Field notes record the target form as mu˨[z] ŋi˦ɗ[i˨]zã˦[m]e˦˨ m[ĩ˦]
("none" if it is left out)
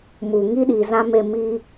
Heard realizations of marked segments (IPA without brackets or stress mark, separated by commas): none, i˨, m, i˦